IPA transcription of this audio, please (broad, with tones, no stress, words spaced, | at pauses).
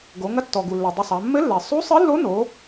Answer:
ɡo˩˧ŋɐ˧˥ tːɔ˩ɡu˩ lːɐ˩dˤɘ˧sˤa˩˧ mːɘ˧˥lːɛ˩ sˤu˧˥sˤɨ˧˥lːo˧˥no˩˧